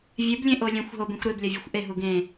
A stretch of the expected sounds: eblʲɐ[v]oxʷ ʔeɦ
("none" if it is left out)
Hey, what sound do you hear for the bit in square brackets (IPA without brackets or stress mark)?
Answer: vʲ